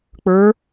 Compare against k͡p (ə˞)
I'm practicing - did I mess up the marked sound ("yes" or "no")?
no